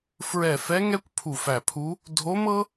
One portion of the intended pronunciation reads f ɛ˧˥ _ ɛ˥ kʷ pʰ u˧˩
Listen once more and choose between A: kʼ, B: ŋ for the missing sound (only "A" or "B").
B